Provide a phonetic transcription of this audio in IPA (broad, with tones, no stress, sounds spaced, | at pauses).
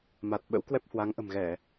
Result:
m a˨˩ t̚ ɓ ə̰˧˥ w k w ɛ˦˥ p̚ h w a˨˦ ŋ ʔ ə̤˨˩ m ɣ ɛ˧˩˨